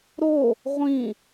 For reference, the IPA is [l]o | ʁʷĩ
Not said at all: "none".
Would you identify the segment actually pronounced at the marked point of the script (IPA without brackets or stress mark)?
ɾ